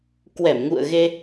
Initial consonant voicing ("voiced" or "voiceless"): voiceless